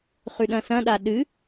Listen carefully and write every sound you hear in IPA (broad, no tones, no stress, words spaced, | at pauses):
χʉɗɐ̃sɐ̃ɗa ɗɨ